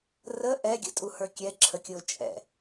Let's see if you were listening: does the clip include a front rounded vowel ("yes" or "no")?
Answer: no